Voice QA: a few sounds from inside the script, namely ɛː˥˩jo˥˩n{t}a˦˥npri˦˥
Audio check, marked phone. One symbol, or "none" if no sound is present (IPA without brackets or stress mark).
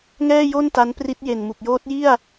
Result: t